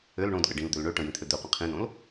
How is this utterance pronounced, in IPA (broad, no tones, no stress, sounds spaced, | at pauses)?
ø l ɳ õ d ɠ ə ɖ ĩ l d̪ ø l ɳ ø ʈ ə̃ j ĩ t̪ʰ ø d̪ ø qʷ ĩ qʰ ĩ n õ l